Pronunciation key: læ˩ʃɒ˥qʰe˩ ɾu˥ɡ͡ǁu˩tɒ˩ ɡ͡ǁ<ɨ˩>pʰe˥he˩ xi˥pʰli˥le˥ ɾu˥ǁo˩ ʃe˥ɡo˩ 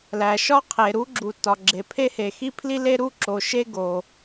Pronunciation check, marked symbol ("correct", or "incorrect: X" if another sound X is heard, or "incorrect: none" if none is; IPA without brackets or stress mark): incorrect: e˩